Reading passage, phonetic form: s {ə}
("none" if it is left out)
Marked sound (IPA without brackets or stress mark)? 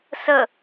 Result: ə